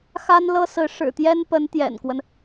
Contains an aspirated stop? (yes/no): no